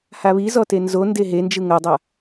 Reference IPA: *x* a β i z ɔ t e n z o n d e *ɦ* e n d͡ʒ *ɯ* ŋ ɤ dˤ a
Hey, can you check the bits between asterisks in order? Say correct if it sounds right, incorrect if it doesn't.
incorrect: h, correct, correct

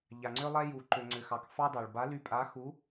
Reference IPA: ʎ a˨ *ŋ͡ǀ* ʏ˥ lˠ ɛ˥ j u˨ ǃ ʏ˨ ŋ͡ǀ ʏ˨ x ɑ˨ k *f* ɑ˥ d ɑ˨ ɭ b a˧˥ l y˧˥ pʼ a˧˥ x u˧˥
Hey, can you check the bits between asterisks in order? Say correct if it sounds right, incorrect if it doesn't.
correct, correct

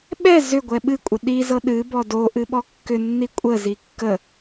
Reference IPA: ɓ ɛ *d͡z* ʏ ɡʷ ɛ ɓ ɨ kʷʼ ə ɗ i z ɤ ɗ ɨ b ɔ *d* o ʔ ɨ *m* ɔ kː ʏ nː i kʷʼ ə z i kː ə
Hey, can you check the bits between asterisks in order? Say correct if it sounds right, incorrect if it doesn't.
incorrect: z, correct, incorrect: ɓ

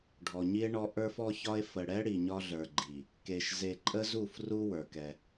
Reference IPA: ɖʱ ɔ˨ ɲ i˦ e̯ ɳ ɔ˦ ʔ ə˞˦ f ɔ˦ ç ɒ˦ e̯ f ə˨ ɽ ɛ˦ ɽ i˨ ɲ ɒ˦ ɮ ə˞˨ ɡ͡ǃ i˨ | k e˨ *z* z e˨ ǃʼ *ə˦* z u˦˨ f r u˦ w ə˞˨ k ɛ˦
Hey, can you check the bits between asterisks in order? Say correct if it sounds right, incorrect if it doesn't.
incorrect: ʃ, correct

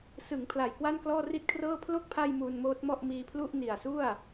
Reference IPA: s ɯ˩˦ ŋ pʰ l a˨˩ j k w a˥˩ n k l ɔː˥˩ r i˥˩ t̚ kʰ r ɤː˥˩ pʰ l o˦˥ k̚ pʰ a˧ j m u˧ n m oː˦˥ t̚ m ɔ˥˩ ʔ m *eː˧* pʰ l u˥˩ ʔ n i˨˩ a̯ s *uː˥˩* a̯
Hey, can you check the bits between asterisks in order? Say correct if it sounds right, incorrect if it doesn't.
incorrect: iː˧, incorrect: u˥˩

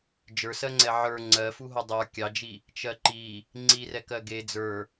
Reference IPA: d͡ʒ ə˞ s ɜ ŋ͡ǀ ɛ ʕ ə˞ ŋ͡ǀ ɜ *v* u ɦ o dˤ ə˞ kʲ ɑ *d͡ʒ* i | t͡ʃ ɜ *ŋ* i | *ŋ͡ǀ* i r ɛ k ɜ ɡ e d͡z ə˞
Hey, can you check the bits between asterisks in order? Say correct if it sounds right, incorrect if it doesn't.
incorrect: f, correct, incorrect: ǃ, correct

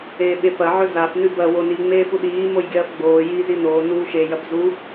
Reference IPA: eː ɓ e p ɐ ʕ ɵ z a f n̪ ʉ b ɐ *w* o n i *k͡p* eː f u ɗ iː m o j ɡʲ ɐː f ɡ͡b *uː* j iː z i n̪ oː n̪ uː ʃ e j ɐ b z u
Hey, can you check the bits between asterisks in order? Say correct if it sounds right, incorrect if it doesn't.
correct, incorrect: ŋ͡m, incorrect: oː

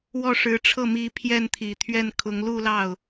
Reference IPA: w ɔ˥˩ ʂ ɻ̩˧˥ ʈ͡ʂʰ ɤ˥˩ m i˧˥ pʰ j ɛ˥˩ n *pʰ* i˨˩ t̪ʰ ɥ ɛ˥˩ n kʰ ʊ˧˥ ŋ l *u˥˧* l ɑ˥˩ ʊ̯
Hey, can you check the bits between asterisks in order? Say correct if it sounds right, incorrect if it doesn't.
incorrect: t̪ʰ, correct

